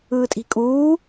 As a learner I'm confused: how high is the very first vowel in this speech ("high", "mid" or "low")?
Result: high